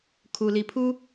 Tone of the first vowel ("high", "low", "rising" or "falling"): low